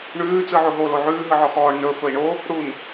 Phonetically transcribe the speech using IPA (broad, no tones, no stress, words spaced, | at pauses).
ɳʉː t͡sɯʕoɦo loʕʉː ɦɯʕɔxɔːɳ nɵ fɵi̯ɳo | ɽun